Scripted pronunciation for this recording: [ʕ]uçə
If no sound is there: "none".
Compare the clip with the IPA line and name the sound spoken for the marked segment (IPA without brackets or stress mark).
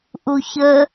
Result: ʔ